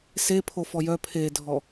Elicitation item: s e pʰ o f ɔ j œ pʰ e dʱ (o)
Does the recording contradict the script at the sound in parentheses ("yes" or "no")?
yes